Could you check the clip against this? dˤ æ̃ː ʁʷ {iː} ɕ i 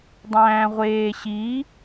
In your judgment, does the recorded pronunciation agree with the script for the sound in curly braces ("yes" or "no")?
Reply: no